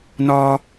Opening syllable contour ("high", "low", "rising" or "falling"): high